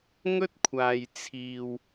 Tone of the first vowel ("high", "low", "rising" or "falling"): high